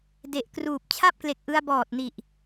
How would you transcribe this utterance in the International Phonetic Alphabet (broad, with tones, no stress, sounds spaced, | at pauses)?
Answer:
d e˨˩ ʔ k r uː˨˩ p̚ t͡ɕʰ a˥˩ p̚ k l e˨˩ k̚ ʔ ɯ˧ a̯ b ɔː˨˩ t̚ n i˨˩ ʔ